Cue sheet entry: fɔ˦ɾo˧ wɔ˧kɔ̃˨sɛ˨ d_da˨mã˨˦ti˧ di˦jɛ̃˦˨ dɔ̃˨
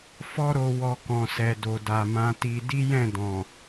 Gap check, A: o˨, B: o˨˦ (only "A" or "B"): A